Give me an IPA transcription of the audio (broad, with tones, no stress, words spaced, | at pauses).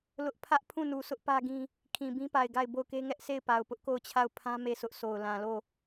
lʊ˦ʔ pʰä˦ʔ pʰũ˦˨nu˨sʰʊ˦ʔ pä˦ɡĩ˦ | kʰĩ˨bĩ˦pa˨ɪ̯ ɡa˦˨ɪ̯bo˦˨ʊ̯ke˦ ŋɛ˦ʔsʰe˦˨ɪ̯pa˨ʊ̯ pʊ˦ʔko˦˨ʊ̯t͡ɕʰa˦˨ʊ̯pʰã˦ me˦˨sʊ˦ʔso˨ʊ̯ lã˨lo˦˨